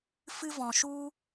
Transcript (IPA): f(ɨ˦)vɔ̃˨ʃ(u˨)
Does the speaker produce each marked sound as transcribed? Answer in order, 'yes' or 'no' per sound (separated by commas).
yes, no